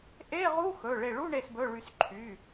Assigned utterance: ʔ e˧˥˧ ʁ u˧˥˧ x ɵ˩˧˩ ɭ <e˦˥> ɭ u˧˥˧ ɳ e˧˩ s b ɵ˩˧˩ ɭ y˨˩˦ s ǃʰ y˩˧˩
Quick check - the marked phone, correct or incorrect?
incorrect